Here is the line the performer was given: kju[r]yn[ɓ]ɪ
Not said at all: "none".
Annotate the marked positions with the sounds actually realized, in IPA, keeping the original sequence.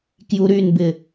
ɾ, b

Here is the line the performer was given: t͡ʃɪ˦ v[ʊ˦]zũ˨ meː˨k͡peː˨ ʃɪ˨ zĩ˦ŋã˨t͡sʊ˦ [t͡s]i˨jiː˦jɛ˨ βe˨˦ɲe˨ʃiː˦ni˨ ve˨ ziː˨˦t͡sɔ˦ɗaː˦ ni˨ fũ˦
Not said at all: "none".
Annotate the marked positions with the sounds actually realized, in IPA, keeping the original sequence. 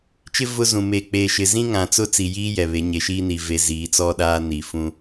ʊ˦, t͡s

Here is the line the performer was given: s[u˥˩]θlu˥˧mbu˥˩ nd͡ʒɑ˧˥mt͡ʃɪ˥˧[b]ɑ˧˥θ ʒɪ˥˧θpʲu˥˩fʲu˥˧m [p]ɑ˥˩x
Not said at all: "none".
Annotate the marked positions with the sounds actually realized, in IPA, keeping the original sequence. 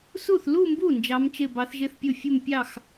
u˥˩, b, pʲ

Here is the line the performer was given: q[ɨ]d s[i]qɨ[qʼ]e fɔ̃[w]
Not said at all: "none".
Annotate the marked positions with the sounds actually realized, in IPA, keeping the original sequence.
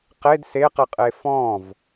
e, e, qʼ, v

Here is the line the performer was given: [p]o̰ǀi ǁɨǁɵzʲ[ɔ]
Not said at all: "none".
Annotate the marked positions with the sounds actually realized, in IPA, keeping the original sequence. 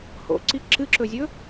h, ɵ

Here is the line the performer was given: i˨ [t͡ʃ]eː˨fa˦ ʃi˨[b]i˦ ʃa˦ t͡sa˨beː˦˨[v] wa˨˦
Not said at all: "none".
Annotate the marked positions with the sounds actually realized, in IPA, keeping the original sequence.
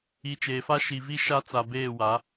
t͡ʃ, v, none

